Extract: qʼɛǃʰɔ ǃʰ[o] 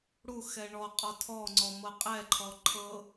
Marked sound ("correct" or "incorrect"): incorrect